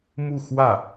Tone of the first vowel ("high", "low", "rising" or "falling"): falling